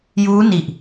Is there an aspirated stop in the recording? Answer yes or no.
no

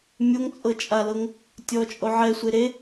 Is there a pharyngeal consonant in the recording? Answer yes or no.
yes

